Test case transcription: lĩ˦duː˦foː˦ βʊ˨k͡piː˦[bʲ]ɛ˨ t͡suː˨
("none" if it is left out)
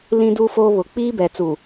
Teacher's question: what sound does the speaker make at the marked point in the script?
b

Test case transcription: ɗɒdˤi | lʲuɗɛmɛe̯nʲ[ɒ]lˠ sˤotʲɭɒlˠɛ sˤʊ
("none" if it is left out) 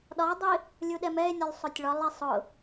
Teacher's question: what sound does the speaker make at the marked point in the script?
ɒ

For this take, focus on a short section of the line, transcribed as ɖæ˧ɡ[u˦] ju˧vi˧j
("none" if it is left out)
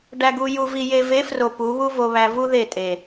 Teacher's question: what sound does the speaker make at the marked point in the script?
u˧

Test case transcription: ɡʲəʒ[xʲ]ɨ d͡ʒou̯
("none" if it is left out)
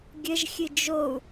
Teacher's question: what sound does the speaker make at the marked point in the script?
xʲ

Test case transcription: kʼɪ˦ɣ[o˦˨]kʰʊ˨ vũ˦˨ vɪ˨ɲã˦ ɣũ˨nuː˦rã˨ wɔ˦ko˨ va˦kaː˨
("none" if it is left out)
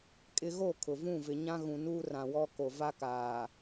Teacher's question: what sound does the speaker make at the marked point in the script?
o˦˨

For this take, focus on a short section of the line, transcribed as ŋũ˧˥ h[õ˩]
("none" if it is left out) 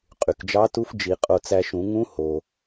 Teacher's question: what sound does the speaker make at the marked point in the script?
o˩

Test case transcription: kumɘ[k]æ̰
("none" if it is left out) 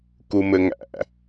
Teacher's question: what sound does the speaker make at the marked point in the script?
ŋ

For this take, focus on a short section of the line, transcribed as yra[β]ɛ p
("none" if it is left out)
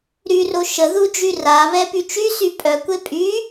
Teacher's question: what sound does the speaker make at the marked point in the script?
β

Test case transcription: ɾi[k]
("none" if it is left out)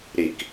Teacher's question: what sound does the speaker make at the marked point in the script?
k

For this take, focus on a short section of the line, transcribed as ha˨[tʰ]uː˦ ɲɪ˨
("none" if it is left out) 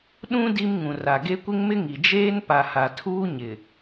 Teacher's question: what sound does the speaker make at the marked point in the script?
tʰ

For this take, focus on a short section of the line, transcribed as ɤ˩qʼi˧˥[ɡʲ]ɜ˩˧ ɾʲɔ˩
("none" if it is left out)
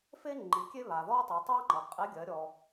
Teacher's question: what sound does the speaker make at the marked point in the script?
ɡʲ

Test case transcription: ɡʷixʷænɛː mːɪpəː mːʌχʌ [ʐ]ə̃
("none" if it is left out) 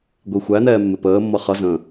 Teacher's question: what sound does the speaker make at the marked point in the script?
z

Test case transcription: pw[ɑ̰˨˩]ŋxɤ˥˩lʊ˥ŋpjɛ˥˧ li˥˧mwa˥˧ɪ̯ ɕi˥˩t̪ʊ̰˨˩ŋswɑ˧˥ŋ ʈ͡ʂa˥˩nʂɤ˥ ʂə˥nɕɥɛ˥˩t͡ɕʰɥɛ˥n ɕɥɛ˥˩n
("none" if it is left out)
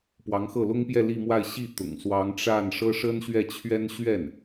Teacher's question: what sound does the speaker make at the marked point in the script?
ɑ˧˥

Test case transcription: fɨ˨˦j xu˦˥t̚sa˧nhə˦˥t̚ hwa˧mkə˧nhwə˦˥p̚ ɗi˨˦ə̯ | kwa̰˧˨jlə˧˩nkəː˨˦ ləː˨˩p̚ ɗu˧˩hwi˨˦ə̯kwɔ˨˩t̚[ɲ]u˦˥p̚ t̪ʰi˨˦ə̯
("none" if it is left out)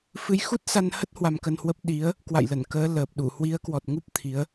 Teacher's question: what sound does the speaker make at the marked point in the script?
ŋ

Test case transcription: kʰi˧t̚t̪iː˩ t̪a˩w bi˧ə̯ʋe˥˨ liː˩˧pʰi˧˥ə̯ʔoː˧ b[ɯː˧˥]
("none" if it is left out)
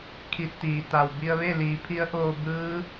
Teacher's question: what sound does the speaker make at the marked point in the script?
ɯː˧˥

